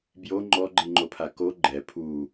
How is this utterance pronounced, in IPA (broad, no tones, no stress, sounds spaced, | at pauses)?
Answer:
b j o ŋ͡ǃ ɔ ɡ͡ǃ i ŋ͡ǃ o pʰ a k o ɡ͡ǃ ɛ pʰ u